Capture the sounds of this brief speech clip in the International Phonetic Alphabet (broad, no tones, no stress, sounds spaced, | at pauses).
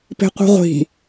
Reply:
p e̤ qʷ i̤ ʁʷ i̤